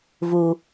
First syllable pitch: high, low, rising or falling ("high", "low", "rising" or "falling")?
low